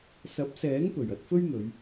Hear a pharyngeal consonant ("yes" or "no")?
no